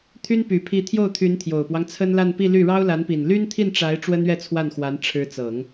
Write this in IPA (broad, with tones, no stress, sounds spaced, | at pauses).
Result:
t̪ʰ y˥ n p y˨˩ pʰ i˧˥ t̪ʰ j o˥˩ ʊ̯ t̪ʰ y˧˥ n t̪ʰ j o˨˩ ʊ̯ p w ɑ˦ ŋ t͡sʰ ə˥ n l a˥˧ n p i˥˧ l y˥˩ ɻ ɑ˥ ʊ̯ l a˧˥ n p i˨˩ n l y˥ n t̪ʰ i˥˩ n ʈ͡ʂ a˧˥ ɪ̯ ʈ͡ʂ w ə˥ n ɥ ɛ˥˧ t͡sʰ w a˥˩ n x w a˧˥ n ʈ͡ʂʰ ɻ̩˧˥ t͡s ɤ˨˩˦ ŋ